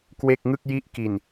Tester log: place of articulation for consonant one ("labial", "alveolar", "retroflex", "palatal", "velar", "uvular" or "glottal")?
velar